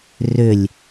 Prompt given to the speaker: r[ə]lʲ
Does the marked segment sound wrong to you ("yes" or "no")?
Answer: yes